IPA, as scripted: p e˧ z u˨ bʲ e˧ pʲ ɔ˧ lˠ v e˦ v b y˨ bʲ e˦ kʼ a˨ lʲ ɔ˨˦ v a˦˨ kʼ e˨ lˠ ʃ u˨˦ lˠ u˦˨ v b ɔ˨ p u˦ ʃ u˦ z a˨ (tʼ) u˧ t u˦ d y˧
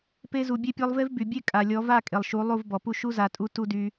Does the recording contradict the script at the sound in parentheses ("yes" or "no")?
no